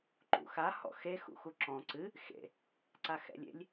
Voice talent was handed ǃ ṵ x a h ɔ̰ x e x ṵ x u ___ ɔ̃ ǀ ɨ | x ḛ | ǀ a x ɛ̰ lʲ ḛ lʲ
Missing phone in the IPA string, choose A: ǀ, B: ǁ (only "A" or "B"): B